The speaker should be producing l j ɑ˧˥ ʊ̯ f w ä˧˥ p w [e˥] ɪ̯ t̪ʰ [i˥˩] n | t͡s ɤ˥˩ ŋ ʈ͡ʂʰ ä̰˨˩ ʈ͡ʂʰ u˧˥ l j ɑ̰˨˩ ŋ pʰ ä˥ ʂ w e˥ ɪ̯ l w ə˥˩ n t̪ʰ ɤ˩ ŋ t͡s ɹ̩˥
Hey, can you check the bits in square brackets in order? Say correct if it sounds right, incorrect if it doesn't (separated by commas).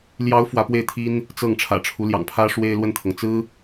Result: incorrect, incorrect